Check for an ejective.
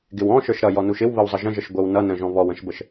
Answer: absent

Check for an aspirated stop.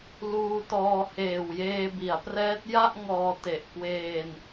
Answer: absent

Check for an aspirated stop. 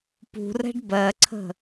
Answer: present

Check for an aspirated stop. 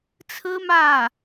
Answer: present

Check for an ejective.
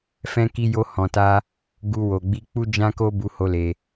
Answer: absent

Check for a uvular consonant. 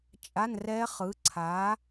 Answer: present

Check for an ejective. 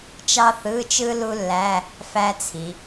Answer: absent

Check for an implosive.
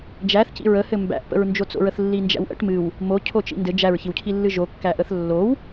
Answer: absent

